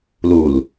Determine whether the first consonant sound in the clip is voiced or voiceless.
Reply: voiced